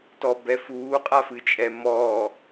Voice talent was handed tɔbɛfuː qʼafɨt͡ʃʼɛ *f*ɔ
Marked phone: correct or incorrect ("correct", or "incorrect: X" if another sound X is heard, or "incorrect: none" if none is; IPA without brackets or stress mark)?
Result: incorrect: m